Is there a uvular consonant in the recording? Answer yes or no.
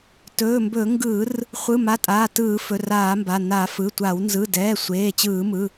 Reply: yes